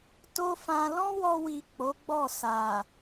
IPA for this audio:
t o˦ f ã˧ l ɔ̃˦ w ɔ˧ w i˨ k͡p o˨˦ ɡ͡b ɔ˦˨ s a˨

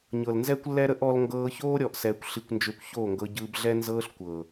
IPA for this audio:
ɲ ɤ˨ l n z ɛ˦ kʷ lː ɛ˦ ɾ ə˦ ʔ ɔ˧ l ŋ ɡ ɤː˧ ç oː˦ ɾʲ ɔ˧ ʔ s ɛː˧ kʷ ɬ i˧ kʷ n d͡ʒ ʏː˧ kʷ ç oː˦˨ ŋ ɡ ɤ˧ ɟ ɯː˧ b ɮ ɛ˦ n z ɤː˦ ɬ kʷ ɤ˨

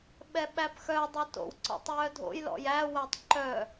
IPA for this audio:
ɓ ɛ ɓ æ p x œ dˤ ɵ t o̰ w ǀ ɔ̰ tˤ j œ dʱ o̰ j l ɔ̰ j æ w æ tˤ ǃ œ

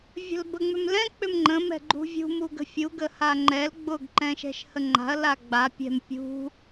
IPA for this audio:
vʲ ə̤ l b ə ŋ͡m ʏ m l ɛ̃ k͡p ʏ m ŋ͡ǃ ə̃ m ɛ̤ ɡ͡ǃ ṳ vʲ ṳ m u ɡ ə̤ fʲ u ɡ ə h a ŋ͡ǃ ɛ l ɡ͡b ʊ ɡ ǃ ɛ̃ ʃ ɛ̤ ʃ h ə ŋ͡ǃ a̤ ɐ̯ l a ɡ͡b a pʲ ɛ̤ m pʲ ṳ

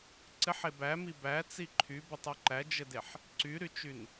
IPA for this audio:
ǀ ɘ ħ e b æ m i b æ t͡s i ǃʰ y b ɘ tˤ y ǃ æ d͡ʒ ɘ d e ħ | ǀ y ɾ y t͡ʃ y n

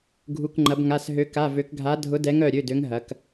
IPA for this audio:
ɡʱ u˧˥˧ k ŋ͡ǃ ɐ˧˥ b ŋ a˧˥˧ s ɦ ø˧˥ k a˧˥˧ v ø˧˥ k ɡʱ a˧˥ dʱ ʊ˧˥ d ɛ˧˥ ŋ œ˧˥˧ ɾʲ ø˧˥˧ d ø˧˥ ŋ ɦ ɐ˧˥ k

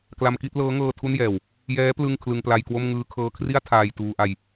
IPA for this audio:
k l a˧ m k i˥˩ t̚ l ɤː˦˥ ŋ ɤː˧ tʰ u˥˩ n j ɛː˨˩ w | j ɛː˦˥ p l ɯ˥˩ ŋ kʰ l ɯ˧ ŋ p l a˧ j k w o˥˩ m ŋ ɯː˧ kʰ ɤː˧ kʰ r i˥˩ a̯ tʰ aː˧ j t uː˧ ʔ a˧ j

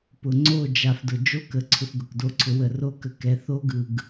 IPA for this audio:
p ʊ˨ ŋ͡ǀ o˦˨ d͡ʒ a˨ f d ʊ˨ d͡ʒ o˦ k ə˨ ǀʰ ʊ˧ f ɡ ʊ˨ k d o˧ ǀʰ ʊ˧ w ə˨ r o˦ k ə˧ k ɛ˨˦ θ o˦ ɡ ɯ˨ ɡ

